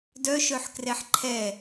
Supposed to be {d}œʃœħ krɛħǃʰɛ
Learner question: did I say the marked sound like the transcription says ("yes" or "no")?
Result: yes